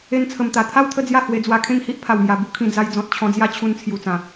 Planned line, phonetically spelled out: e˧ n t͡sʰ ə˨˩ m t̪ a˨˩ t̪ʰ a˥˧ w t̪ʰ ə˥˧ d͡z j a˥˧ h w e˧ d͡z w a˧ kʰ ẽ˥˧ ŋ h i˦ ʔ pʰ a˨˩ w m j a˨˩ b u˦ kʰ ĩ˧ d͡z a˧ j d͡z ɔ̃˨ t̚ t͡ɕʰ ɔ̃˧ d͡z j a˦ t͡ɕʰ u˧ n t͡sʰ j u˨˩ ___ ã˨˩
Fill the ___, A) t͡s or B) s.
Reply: A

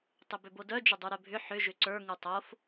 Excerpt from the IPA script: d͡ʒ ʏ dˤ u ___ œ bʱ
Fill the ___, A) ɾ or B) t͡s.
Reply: A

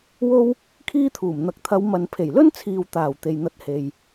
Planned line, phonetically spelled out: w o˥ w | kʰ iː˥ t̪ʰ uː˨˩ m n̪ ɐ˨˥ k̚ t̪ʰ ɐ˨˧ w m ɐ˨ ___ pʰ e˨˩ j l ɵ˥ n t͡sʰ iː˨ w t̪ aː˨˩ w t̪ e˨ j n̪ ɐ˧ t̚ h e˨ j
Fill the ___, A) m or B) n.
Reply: B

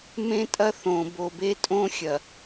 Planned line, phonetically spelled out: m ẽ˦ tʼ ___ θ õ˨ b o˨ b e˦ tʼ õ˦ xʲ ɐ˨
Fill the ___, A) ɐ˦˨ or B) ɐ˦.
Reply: B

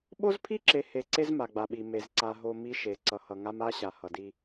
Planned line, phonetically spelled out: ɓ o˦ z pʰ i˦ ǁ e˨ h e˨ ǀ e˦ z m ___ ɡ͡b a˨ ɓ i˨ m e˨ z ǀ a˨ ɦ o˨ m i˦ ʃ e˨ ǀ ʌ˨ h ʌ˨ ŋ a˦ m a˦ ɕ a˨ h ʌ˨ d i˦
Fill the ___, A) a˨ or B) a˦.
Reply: A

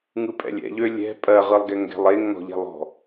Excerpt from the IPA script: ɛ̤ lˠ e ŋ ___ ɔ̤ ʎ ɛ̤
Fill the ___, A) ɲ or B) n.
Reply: B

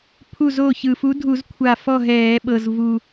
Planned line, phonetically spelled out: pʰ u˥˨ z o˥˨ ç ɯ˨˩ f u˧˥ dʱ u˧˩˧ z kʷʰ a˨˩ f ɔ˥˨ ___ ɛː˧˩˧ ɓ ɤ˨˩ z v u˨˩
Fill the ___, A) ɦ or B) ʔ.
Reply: A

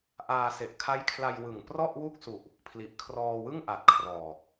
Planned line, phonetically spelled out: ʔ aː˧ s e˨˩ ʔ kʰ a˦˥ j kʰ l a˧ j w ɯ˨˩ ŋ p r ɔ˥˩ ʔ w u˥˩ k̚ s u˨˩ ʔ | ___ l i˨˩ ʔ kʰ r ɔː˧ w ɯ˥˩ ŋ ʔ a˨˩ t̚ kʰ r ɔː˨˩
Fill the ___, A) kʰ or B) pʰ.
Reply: B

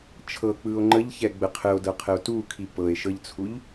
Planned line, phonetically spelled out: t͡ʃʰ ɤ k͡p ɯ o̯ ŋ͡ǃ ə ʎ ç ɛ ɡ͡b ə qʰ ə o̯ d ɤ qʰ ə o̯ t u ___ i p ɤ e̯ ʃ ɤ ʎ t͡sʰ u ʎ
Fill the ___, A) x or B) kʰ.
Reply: B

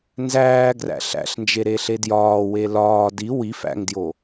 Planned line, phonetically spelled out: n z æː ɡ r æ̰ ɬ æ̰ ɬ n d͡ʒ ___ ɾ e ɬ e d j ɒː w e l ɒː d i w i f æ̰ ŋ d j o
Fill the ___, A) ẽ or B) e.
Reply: B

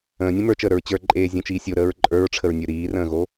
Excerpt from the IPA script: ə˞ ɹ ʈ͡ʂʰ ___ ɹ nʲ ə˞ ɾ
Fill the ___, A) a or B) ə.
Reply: B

